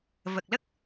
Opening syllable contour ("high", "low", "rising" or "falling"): low